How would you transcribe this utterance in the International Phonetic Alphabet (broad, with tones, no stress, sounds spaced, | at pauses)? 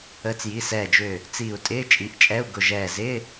əː˨˦ t͡s j i˩˧˩ s ɛː˧˩ d͡ʒ ʏː˧˩ | t͡s iː˧˩ u̯ tʼ ɪː˧˥˧ t͡ʃʼ i˩˧˩ ʔ t͡ʃʼ ɛ˧˥˧ u̯ ɡ ʊ˧˩ ʒ ɛː˧˩ z ɪː˧˥˧